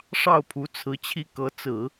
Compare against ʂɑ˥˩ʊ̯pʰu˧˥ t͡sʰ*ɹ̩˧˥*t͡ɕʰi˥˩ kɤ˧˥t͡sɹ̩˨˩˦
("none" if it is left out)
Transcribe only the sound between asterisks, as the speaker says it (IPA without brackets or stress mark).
ɹ̩˧˥